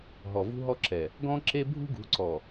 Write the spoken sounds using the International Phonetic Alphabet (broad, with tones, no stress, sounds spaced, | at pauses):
ɦ ɔ˨ v ṳ˦ ɦ ɔ˦ ǁ ɛ˨ | ɡ ɔ̃˦ ǁ e˦ bʱ ṳ˦ ɡ ṳ˨˦ ǀ ɔ˨